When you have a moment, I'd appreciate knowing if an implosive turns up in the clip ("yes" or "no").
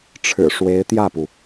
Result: no